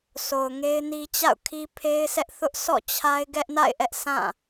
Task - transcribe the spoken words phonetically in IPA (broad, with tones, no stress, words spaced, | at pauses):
sʰo˨ʊ̯ŋe˦ɪ̯ni˦ t͡ɕa̰˦˨ʊ̯kʰi˦pʰe˦ɪ̯sɛ˦ʔ θʊ˦ʔsʰɔ̰˦˨t͡ɕʰa˦ɪ̯ ɡɛ˦ʔna̰˦˨ɪ̯ʔɛ˦ʔ sʰã˦˨